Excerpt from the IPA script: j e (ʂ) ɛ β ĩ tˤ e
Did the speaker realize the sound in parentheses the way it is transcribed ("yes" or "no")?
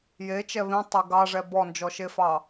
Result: no